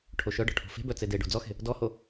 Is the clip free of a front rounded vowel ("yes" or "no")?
no